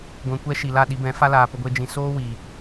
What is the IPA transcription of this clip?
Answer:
ɡʷ ɛ̃˧ kʷ ɛ˦ ʃ i˨ l a˦˨ ɗ i˧ b ɛ̃˨˦ f a˦ l aː˨ p ə˦ ɡʷ e˦ d͡ʒ ĩ˧ s oː˦ w iː˨

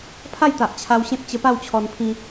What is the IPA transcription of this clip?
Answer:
pʰ a˥˧ j t̪ a˨ ʔ t͡ɕʰ a˧ w ɕ ẽ˦ p̚ t͡ɕ ə˧ p a˥˧ w t͡ɕʰ ɔ˧ n pʰ ĩ˧

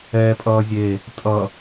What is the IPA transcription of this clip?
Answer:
ɛː pʼ ʌː zʲ e | tʼ ʌ

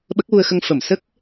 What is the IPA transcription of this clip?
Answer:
ɓ ə˦˥ k̚ w u˧ ə̯ x ə˧ ŋ f ə˨˩˨ m s ə˦˥ k̚

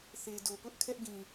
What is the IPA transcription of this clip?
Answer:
θ e˨ d o˨ p ʊ˦ ʔ kʰ ɛ˦ ʔ ɡ ĩ˨

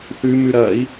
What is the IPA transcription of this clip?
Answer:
θ ʉ m ʉ ɾ ɐ i̯

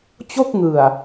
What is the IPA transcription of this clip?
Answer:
t͡ɕ o˥˩ k̚ ŋ ɯ˨˩ a̯

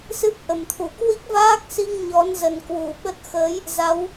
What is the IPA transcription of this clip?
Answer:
s ɨ˦˥ p̚ ʔ ə˨˩ m t̪ʰ u˧˩ k w i˦˥ k̚ v aː˦˥ k̚ s i˧ ŋ ɲ ɔ˨˦ n z ə˨˩ n k w u˧˩ ɓ ə˦˥ t̚ x əː˨˦ j | z a˨˦ w

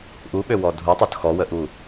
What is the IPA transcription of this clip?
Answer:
ʔ u ɓ ø w ɔ dʱ u tˤ o t x ɔ w ə ʔ u

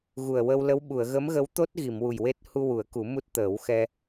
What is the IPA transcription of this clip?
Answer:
ɣ u˨˩ ə̯ w ə˧ w l ə˧˥ w ɓ u˨˩˨ ə̯ ɣ ə˧˥ m ɣ ə˧˥ w t̪ o˦˥ t̚ ɣ i˨˩˨ m w u˨˩ j w e˦˥ t̚ h u˧ w u˨˩˦ ə̯ k u˨˩˦ m u˦˥ t̚ t̪ əː˨˩˦ w x ɛ˧

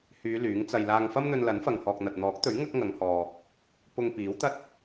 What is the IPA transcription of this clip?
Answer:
h yː˨˧ l yː˨˥ ŋ t͡s ɐ˧ j l aː˧ ŋ f ɐ˥ m n̪ ɵ˧ n l ɐ˨˥ n f ɐ˨ ŋ h ɔː˨ k̚ n̪ ɐ˨ t̚ n̪ ɔː˨˥ k̚ t̪ ɵ˨˥ ɥ ŋ ɐ˥ k̚ ŋ ɐ˨˧ ŋ h ɔː˨ | p ʊ˧ ŋ p iː˨˥ w t̪ ɐ˥ t̚

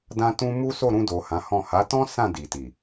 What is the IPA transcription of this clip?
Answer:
d ã˧ t ũ˧ m u˦ s o˦˨ ɾ ũ˧ d o˨ h ã˨˦ h ɔ̃˦˨ h a˨˦ t ɔ̃˦ s ã˦˨ d i˨ t i˨

